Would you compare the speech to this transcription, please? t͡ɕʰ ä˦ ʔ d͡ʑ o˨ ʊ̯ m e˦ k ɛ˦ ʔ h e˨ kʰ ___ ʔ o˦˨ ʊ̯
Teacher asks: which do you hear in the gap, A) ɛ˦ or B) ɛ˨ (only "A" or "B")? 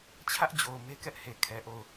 B